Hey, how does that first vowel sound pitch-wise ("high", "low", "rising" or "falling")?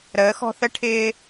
rising